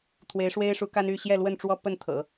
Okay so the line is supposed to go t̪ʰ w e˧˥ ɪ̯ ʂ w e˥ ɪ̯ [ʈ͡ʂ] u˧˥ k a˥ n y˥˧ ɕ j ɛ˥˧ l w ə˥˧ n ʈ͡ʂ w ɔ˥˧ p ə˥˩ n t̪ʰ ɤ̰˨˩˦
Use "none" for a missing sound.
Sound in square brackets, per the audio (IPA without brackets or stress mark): ʂ